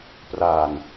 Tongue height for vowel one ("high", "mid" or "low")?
low